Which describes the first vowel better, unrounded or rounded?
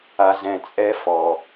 unrounded